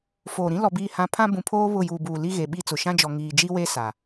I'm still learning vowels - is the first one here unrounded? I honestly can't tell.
no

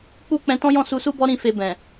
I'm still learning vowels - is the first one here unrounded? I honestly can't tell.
no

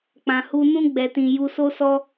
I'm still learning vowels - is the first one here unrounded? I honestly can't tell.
yes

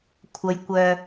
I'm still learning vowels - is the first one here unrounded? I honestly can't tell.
yes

